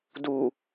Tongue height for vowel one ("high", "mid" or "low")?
high